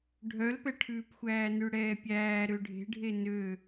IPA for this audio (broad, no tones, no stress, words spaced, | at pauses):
ɖʱœlpɛʈʰʉːpxʷæː nʉɽɛːpʲæː ɾøɖʱe̤ɖʱe nø